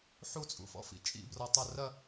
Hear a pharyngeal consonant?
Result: yes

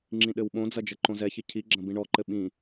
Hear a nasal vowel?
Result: yes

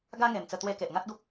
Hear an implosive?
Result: no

